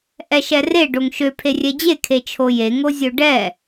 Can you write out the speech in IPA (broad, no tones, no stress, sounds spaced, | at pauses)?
ʔ ɛ ʃ ɛ r e ɖ o ŋ ʃ ø pʰ e rʲ ɛ d͡ʑ e kʰ e t͡ʃʰ o j e ŋ o zʲ o ɖ ɛ